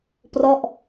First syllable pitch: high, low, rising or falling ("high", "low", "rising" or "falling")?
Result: falling